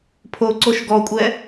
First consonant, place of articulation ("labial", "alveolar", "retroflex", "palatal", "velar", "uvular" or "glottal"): labial